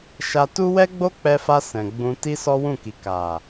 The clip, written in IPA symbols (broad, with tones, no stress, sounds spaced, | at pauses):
ʃ a˧ t u˦ w ɛ˦ ɡ͡b o˦ k͡p ɛ˧ f a˧ s ɛ̃˨ ɡ͡b ũ˧ t i˦ s ɔ˦ w ũ˦˨ k i˨ k a˨